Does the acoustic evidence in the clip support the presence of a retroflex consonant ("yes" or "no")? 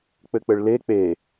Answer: yes